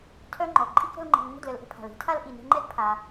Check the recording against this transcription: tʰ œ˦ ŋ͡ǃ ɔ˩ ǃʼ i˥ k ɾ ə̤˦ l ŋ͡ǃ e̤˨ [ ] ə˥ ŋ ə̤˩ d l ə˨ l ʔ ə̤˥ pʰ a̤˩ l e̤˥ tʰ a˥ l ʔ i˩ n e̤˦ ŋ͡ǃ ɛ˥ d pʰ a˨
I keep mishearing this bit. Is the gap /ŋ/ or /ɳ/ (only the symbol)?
ŋ